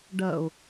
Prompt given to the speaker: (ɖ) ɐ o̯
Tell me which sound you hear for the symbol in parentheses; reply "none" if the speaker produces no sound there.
ɖ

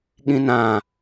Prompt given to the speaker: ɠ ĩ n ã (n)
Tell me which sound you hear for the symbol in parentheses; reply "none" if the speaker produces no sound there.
none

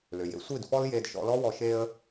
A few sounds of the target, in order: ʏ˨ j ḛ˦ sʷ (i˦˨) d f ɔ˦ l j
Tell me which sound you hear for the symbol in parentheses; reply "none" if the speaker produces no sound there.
i˦˨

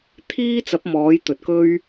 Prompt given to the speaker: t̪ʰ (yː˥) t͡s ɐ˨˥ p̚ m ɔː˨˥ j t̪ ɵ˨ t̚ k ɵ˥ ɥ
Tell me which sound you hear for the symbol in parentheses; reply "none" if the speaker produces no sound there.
iː˥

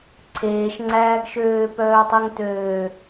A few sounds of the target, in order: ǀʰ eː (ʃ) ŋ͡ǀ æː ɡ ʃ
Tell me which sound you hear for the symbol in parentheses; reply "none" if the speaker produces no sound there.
ʃ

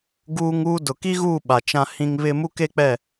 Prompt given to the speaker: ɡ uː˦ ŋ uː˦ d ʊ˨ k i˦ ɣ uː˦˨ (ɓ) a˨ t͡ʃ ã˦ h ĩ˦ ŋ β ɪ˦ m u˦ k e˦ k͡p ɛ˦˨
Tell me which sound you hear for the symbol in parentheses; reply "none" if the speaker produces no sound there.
ɓ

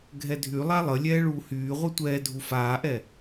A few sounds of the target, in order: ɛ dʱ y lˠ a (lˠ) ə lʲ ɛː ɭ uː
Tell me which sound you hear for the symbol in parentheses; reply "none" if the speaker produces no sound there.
lˠ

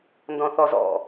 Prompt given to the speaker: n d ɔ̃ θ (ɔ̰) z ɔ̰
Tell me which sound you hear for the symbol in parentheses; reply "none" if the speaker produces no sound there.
ɔ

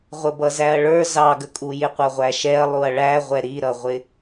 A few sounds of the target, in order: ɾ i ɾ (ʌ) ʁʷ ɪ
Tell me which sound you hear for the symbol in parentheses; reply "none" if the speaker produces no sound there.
ʌ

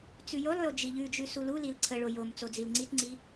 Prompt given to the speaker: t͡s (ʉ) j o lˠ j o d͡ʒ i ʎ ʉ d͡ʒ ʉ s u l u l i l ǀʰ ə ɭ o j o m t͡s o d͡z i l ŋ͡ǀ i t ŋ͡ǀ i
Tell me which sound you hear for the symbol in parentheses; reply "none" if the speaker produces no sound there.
ʉ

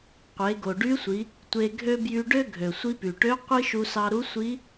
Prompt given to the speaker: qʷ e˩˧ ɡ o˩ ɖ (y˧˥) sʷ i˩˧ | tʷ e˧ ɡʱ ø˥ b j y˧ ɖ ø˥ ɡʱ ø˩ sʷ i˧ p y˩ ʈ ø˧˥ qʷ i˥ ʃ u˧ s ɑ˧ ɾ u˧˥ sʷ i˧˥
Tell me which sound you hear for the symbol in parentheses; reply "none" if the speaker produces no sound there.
y˧˥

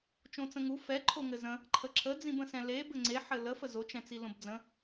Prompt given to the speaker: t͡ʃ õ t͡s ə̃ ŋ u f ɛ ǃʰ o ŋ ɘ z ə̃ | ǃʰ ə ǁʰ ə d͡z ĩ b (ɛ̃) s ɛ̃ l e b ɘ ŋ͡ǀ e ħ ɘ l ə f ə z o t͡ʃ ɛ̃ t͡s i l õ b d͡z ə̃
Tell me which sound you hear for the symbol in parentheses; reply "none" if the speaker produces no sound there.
ə̃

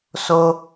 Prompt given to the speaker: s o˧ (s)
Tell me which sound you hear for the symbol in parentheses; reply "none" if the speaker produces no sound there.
none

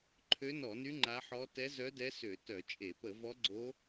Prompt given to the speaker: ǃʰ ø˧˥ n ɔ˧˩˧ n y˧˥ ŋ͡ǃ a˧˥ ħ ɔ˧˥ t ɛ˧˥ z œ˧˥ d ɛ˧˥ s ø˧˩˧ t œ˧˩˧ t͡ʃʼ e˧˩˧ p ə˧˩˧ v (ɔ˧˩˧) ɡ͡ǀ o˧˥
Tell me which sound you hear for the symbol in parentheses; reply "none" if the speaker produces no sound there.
ɔ˧˥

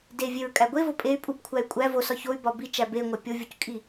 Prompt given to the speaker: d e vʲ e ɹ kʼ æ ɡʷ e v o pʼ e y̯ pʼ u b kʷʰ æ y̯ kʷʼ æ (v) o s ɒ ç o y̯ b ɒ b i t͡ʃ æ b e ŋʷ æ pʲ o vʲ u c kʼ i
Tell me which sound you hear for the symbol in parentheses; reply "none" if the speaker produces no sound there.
v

